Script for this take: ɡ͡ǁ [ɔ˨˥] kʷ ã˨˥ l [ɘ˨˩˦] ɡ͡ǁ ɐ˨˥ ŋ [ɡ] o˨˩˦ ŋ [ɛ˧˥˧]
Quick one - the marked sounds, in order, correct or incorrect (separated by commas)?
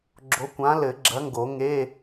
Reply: incorrect, correct, correct, incorrect